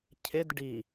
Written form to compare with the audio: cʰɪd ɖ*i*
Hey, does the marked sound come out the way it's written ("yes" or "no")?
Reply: yes